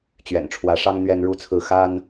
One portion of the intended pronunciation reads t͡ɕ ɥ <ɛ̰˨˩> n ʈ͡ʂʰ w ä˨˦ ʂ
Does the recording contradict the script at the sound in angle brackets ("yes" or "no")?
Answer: no